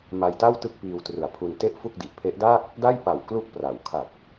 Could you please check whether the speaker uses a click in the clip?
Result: no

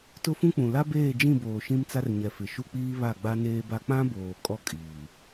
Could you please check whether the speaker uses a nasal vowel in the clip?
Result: yes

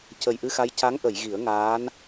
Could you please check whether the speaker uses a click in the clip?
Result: no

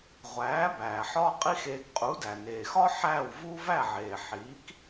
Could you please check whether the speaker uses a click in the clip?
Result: no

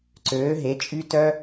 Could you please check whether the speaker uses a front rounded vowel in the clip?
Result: yes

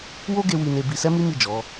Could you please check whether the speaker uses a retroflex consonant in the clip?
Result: no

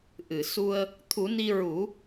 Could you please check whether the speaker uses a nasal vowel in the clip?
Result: no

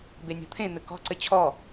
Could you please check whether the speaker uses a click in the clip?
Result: yes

